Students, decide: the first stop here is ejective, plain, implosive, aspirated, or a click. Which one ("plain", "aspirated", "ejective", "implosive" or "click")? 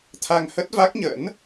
aspirated